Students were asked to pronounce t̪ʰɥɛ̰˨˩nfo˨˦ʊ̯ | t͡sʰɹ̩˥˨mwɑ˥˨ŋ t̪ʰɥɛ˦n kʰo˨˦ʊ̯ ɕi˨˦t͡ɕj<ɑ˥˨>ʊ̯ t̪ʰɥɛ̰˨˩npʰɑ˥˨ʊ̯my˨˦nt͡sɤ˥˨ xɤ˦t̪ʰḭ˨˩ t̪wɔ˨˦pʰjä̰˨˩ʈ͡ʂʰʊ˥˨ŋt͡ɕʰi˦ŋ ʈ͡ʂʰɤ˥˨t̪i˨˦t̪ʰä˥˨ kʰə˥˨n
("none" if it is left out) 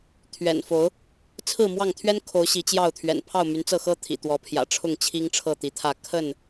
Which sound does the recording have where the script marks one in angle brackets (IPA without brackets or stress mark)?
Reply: ɑ˥˨